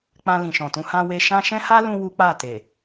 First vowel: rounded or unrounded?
unrounded